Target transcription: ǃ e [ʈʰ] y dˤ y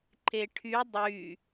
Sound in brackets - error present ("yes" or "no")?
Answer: no